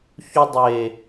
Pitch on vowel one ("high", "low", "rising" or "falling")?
high